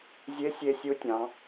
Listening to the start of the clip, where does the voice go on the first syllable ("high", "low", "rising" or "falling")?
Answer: rising